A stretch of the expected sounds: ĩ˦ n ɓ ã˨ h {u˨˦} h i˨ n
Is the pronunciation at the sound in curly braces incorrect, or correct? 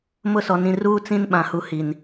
incorrect